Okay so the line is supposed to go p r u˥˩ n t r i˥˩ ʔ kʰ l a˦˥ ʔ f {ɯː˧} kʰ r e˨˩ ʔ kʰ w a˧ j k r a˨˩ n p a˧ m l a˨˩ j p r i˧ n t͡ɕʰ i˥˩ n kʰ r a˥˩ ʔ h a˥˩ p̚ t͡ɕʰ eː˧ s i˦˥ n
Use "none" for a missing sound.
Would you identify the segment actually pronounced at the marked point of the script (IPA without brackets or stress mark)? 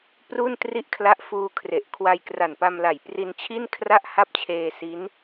uː˧